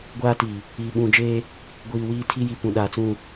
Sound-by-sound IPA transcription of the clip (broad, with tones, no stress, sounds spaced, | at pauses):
ɡʷ aː˦ t i˨ | iː˨ ɓ ũ˨ d͡ʒ eː˦ | ɡʷ iː˨ w iː˦ tʰ i˦ j i˨ p ũ˨ ɗ a˨ t͡s ũ˦˨